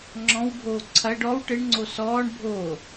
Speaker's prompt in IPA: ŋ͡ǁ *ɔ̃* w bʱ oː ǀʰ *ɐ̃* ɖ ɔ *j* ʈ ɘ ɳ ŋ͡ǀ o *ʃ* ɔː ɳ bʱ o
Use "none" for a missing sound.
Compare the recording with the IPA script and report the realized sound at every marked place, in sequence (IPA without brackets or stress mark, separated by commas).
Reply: ɔ̃, ɐ, w, s